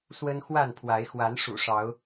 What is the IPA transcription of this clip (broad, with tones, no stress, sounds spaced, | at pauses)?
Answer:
s w ə˦ n x w a˥˨ n pʰ w a˨˦ ɪ̯ x w a˨˦ n ʂ ṵ˨˩ ʂ ɑ˨˦ ʊ̯